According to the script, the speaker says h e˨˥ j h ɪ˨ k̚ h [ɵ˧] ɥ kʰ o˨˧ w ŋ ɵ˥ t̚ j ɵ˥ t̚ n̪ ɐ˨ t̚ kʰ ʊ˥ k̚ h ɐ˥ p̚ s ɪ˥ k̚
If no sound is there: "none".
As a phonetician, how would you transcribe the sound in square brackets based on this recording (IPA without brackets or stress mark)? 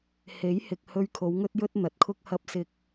ɵ˧